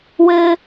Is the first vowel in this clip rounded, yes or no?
no